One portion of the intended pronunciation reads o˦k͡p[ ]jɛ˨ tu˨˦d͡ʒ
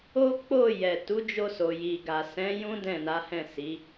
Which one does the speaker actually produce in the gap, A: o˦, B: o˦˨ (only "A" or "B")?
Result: B